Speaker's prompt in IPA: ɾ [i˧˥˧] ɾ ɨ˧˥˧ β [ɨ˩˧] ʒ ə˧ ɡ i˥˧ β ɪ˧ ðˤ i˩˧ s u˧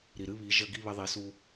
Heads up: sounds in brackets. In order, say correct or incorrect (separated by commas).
incorrect, incorrect